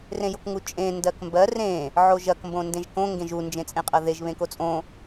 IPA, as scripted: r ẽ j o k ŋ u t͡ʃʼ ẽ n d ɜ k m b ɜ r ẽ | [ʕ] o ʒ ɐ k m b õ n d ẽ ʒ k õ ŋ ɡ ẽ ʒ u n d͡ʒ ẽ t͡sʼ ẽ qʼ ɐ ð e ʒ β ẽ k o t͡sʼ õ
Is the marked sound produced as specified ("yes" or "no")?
yes